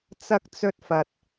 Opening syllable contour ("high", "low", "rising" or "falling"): high